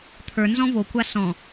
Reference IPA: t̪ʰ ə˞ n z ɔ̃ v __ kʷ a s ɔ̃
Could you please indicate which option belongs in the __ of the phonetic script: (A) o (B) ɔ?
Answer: A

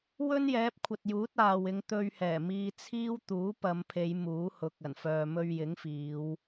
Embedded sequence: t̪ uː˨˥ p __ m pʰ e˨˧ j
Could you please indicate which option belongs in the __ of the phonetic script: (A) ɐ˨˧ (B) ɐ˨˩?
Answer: A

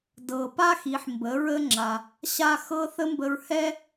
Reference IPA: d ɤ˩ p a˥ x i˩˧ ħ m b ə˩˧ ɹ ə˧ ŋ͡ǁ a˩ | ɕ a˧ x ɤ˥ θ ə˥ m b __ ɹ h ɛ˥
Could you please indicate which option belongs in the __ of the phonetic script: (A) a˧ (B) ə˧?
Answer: B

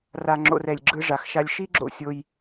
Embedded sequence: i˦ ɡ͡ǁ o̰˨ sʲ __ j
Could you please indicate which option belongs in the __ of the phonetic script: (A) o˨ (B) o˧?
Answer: B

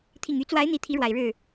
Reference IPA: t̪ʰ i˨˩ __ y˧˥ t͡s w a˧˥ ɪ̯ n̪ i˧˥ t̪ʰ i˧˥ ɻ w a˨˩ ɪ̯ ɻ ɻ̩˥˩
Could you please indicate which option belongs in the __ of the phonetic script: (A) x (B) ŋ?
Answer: B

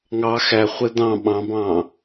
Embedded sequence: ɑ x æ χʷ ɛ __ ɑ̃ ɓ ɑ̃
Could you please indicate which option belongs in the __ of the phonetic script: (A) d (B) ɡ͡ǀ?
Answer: A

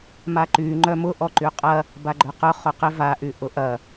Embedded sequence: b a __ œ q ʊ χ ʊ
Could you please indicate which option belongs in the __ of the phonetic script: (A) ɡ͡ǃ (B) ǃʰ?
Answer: A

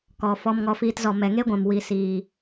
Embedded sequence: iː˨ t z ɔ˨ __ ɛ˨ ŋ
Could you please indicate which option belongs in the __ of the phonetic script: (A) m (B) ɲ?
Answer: A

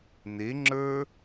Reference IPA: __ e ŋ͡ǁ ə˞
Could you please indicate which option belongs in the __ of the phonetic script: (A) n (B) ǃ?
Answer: A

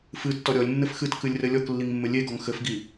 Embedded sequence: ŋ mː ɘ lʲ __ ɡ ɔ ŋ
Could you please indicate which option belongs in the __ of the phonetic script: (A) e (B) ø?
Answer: A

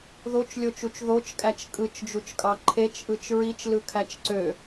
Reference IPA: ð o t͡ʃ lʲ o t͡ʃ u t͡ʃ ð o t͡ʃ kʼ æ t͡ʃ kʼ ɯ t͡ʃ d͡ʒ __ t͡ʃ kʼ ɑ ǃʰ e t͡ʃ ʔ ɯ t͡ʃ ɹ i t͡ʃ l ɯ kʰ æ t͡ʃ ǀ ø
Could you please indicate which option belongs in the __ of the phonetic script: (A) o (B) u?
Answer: B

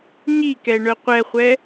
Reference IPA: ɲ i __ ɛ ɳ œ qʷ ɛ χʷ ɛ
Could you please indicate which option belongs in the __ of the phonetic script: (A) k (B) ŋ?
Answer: A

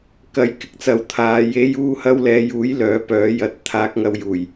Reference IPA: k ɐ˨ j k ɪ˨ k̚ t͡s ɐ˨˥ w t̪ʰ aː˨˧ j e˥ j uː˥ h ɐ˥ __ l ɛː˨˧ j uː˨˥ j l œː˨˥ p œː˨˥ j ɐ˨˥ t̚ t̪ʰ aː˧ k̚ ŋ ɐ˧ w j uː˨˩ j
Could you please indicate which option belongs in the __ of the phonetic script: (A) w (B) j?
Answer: A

